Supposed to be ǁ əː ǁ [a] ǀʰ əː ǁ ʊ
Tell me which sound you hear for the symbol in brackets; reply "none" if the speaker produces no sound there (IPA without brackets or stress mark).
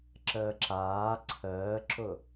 aː